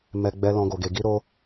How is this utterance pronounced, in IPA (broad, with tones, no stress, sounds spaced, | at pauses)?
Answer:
m ɛ˧ ɡ͡b ɛ˧ l ɔ̃˧ ɡ o˧ ɡ e˧ ɡ i˦ ɾ o˦